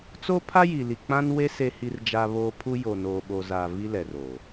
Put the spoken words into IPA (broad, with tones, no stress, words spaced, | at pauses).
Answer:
t͡so˦pʰa˦ji˨li˨ k͡pã˦nwe˦ se˦hi˦rd͡ʒa˦βoː˦ pʰu˦ jo˨noː˨ɓo˨za˨ vi˦lɛ˨ro˨